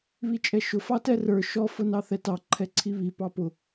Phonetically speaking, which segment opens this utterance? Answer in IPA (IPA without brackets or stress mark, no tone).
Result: β